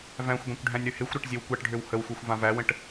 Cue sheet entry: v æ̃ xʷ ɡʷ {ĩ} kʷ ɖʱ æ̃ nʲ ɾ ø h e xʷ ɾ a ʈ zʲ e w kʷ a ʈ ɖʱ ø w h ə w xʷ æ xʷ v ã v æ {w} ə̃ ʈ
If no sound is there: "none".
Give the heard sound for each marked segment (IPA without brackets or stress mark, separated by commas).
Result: ẽ, w